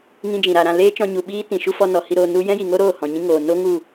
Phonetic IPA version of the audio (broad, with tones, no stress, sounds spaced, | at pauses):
ŋ ĩ˦ d͡ʒ ĩ˨ ɾ a˧ ɾ ã˧ l eː˦ t͡ʃ ɔ̃˧ ɲ u˨ ɓ iː˦ t ĩ˨ ʃ u˦ f ɔ˧ n ɔ˨ h i˧ ɾ o˧ n u˦ j ɛ̃˦ j i˨ ŋ o˦ ɾ oː˦˨ h ɔ̃˨ ɲ ĩ˦ ŋ oː˨ n o˦ ŋ u˦˨